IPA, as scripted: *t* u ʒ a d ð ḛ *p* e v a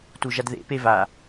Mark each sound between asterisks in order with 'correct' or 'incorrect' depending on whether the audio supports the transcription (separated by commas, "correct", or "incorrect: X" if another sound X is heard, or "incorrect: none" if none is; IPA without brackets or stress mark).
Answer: correct, correct